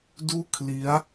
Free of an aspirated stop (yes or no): no